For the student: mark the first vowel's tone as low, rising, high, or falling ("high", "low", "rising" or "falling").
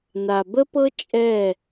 low